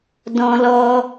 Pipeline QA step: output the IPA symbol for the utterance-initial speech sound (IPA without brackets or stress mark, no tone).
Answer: d